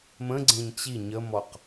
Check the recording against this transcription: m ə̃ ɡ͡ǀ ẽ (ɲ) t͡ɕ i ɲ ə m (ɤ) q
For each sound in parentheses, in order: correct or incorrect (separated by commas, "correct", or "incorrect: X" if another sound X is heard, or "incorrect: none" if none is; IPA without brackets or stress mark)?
correct, incorrect: ɔ